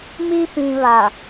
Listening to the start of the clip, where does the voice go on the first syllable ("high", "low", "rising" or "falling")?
high